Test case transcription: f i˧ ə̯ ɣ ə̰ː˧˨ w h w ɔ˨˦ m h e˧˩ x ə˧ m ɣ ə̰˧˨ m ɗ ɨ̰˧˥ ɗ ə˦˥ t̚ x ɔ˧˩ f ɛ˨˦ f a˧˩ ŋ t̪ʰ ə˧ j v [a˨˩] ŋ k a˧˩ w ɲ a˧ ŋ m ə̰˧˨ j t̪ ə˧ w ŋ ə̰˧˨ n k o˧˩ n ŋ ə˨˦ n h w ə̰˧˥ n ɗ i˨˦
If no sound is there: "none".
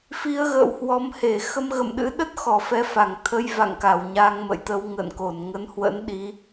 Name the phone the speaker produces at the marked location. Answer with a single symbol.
a̰˧˨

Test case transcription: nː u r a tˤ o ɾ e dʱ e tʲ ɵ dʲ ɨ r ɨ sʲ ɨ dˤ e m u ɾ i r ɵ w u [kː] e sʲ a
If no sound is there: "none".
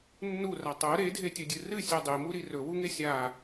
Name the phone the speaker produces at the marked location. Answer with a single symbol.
ŋ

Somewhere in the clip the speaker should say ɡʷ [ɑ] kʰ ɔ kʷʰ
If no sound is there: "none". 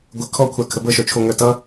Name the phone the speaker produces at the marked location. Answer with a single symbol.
ə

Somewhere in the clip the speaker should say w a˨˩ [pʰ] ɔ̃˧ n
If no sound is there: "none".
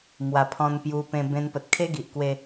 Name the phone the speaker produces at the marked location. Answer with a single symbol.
pʰ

